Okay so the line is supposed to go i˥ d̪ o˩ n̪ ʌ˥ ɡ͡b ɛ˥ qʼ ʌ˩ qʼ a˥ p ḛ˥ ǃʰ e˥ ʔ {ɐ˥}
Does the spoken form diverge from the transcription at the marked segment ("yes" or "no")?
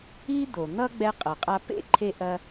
no